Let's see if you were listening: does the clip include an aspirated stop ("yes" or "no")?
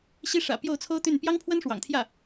yes